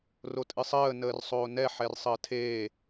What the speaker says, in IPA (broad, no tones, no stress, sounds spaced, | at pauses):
r o tʼ ɨ sˤ əː n əː r sˤ oː n ɛ ħ ɛ r sˤ əː tʰ eː